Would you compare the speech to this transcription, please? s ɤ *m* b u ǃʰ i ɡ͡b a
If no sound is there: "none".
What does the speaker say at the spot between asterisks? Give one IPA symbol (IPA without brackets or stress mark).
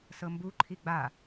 m